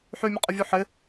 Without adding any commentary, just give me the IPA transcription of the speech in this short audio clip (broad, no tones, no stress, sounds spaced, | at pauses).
ħ y mʲ ə qʼ ə vʲ u ħ ɪ